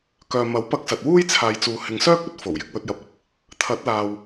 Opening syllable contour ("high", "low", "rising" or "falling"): low